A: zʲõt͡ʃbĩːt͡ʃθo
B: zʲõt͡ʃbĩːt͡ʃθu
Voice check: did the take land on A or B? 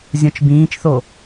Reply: A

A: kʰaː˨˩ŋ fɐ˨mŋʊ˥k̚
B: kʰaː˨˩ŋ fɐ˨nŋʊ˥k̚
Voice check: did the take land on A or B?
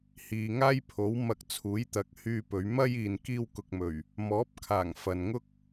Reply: B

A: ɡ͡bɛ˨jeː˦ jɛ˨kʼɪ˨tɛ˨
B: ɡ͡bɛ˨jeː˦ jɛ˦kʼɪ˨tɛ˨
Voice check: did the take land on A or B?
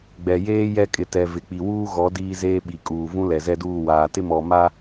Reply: B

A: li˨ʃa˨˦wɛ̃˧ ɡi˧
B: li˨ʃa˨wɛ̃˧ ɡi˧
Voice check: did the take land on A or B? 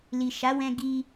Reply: A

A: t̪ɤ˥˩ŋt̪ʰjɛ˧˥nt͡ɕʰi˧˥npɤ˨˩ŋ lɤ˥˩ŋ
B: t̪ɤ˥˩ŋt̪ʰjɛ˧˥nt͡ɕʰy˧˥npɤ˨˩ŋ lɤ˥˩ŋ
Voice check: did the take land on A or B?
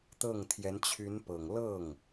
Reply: B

